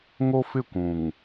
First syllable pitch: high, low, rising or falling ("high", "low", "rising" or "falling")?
high